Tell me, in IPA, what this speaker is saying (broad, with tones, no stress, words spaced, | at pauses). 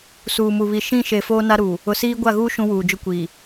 suː˨mu˨βi˨ ʃĩ˦˨ʃe˨ foː˦na˦ɾuː˨ | ʊ˨siː˦ ɡʷa˦˨ɣuː˦ ʃũ˦wuː˨d͡ʒʊ˦kʷiː˨